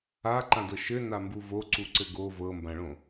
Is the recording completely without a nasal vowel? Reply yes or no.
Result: no